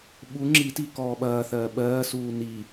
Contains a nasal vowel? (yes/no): no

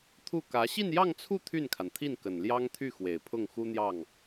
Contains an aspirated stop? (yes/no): yes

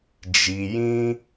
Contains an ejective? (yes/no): no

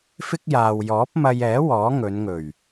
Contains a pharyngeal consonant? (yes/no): no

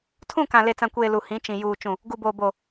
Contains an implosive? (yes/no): no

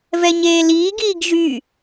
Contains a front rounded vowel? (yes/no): yes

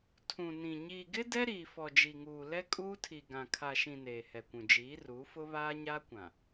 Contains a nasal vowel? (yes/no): yes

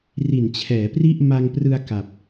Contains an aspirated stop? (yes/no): yes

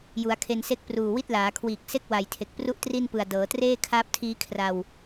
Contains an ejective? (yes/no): no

